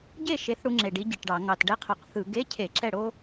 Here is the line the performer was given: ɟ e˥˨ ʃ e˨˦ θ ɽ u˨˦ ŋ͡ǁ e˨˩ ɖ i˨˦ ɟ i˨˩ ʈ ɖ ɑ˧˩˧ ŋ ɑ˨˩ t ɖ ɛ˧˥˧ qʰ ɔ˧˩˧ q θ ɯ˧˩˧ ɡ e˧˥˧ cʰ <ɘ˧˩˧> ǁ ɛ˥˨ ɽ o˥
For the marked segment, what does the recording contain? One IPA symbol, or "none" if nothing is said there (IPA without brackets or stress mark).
e˧˩˧